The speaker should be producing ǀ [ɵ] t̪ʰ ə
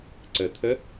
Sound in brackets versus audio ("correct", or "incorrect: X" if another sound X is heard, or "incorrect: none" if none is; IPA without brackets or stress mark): incorrect: ə